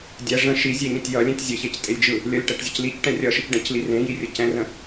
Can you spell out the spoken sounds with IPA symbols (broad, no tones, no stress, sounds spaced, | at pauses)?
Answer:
dʲ ɛ ʐ ə̃ ʃ i zʲ e ɲ ə̃ tʲ j ʌ lʲ ẽ tʲ zʲ ə ç e c tʼ e lʲ d͡ʒ ɯ | lʲ ʌ lʲ ʈ ɛ ʈ zʲ ə c l i c ʈ ɛ̃ rʲ ʌ ʃ ɯ c ɖ ɛ̃ c l i r ẽ j i rʲ ə c ɛ̃ r ə̃